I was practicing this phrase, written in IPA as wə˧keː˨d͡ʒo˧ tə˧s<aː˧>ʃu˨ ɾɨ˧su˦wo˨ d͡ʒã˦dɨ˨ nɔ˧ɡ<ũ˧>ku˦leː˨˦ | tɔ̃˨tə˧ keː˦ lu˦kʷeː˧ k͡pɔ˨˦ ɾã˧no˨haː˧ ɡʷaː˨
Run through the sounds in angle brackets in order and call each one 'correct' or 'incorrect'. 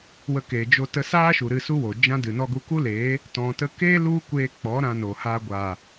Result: incorrect, incorrect

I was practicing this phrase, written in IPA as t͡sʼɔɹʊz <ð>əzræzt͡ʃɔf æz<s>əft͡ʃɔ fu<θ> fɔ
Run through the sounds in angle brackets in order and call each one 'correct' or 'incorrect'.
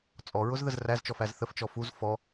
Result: correct, incorrect, incorrect

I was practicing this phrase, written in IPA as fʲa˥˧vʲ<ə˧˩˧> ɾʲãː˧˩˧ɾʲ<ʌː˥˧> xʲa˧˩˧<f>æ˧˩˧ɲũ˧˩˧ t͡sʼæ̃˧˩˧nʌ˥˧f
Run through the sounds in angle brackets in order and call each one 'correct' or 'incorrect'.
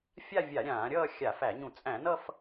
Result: incorrect, correct, correct

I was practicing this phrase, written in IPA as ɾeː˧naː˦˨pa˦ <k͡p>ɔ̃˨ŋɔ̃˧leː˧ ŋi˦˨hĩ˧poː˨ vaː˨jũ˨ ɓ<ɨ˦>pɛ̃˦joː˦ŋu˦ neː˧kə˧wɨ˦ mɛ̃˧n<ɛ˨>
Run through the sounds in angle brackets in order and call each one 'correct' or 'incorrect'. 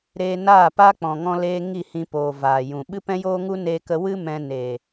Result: correct, correct, incorrect

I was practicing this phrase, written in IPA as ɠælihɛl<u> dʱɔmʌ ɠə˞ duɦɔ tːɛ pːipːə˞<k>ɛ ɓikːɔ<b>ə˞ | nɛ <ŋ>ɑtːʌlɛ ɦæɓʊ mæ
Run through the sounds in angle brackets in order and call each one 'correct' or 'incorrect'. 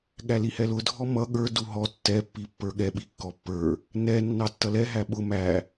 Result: incorrect, incorrect, incorrect, incorrect

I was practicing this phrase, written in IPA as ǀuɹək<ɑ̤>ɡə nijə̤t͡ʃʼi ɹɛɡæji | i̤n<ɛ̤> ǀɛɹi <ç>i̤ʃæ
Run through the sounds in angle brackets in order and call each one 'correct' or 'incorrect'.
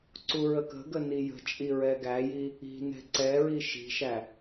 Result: incorrect, correct, incorrect

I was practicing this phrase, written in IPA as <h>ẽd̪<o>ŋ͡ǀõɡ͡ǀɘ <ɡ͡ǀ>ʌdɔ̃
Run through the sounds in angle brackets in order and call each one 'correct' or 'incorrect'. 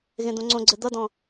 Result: incorrect, incorrect, incorrect

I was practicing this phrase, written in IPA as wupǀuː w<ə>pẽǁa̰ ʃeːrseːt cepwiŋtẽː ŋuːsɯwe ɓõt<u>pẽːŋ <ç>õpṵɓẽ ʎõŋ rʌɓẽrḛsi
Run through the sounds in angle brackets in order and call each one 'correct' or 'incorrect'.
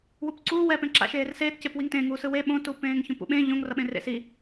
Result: incorrect, correct, correct

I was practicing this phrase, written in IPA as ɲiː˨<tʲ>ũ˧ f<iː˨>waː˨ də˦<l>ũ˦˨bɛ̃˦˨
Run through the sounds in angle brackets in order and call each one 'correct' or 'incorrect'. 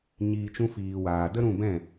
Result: incorrect, correct, incorrect

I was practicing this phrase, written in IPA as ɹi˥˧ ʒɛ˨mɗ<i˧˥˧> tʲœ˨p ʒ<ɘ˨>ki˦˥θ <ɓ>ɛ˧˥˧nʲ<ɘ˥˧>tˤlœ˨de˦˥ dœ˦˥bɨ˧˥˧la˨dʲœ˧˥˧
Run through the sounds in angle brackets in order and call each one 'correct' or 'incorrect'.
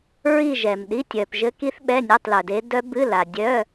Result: correct, incorrect, correct, incorrect

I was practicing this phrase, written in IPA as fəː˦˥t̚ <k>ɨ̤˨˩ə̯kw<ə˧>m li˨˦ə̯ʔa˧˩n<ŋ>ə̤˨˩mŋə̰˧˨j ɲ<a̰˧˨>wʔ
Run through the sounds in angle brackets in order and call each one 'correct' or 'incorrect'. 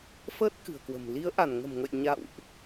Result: correct, incorrect, correct, correct

